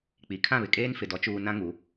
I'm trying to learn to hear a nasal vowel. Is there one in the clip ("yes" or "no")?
yes